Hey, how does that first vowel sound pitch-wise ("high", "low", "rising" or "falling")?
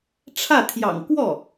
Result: falling